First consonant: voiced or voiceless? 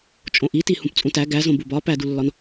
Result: voiceless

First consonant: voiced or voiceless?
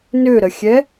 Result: voiced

